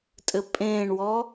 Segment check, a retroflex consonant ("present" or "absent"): present